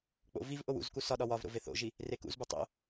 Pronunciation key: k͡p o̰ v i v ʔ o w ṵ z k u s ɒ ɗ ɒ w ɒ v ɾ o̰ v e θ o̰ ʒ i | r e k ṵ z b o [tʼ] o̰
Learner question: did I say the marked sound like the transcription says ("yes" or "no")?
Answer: no